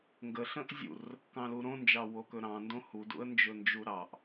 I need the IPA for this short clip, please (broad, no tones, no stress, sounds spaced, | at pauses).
ŋ ɡ ə ɬ ə̃ ʔ zʲ ṵ r | k ɑ̃ l u ɾ õ n d͡ʒ ɑ w o k ɵ ɾ ɑ̃ n d õ h u d ṵ ə̯ n d͡ʒ ɵ n d͡ʒ u ɾ ɑ ʔ